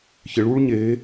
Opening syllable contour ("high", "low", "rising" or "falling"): rising